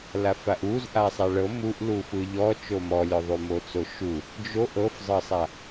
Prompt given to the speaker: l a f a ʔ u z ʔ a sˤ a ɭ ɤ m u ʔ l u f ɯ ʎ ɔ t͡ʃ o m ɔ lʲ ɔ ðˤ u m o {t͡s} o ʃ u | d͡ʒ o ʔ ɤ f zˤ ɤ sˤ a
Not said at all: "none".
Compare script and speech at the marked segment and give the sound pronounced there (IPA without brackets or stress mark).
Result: t͡s